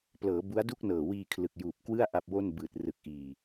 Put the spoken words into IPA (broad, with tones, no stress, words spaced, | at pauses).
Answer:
plɤː˩˦ bu˦˥a̯du˥˩k̚nɤː˨˩ wiː˧ kʰlɯ˨˩k̚juː˨˩p̚ kwɯ˥˩a̯ ʔa˥˩p̚ wo˥˩n bɯː˨˩t̚rɯ˨˩k̚ʔiː˨˩